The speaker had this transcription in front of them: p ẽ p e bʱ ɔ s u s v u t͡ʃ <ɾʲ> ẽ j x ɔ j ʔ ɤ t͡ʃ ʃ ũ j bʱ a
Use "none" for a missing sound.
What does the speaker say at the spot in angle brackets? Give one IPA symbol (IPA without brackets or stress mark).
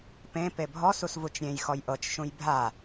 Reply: ɾʲ